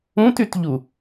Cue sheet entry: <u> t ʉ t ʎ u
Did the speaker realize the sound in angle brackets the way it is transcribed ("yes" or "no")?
no